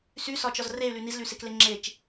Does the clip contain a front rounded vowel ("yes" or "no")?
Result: yes